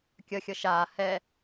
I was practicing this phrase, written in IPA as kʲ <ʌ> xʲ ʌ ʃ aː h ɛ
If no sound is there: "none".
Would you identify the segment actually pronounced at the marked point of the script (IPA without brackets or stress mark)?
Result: ʌ